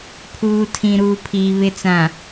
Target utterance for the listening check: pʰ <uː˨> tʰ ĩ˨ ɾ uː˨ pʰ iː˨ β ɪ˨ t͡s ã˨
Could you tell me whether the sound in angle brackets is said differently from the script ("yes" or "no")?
no